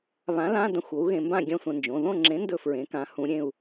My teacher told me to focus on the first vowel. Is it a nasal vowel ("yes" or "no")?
yes